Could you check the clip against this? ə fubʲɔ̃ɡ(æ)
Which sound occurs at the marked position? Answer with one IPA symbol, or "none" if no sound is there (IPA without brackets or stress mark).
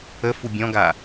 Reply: a